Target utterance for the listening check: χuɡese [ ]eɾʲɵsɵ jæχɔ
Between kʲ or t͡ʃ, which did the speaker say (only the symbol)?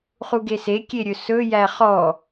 kʲ